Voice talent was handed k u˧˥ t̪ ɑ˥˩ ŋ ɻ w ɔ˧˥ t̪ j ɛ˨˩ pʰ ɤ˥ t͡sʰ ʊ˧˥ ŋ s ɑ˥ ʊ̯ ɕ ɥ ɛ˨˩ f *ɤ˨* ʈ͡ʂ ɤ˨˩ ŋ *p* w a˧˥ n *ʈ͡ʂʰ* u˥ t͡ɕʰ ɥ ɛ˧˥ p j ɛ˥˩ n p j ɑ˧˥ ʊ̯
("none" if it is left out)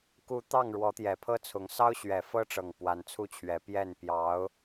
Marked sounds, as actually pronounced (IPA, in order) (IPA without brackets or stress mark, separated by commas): ɤ˥, p, t͡sʰ